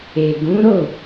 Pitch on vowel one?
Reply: low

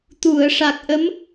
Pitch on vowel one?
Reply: low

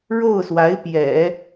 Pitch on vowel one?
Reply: falling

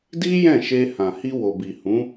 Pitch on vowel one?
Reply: high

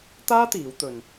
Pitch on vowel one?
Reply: high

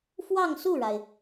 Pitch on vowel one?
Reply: falling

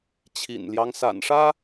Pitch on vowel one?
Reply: low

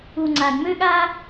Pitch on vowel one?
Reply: low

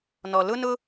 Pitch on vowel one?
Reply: low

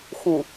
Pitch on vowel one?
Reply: low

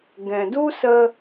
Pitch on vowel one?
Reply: low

